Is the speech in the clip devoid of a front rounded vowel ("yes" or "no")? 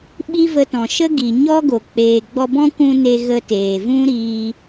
yes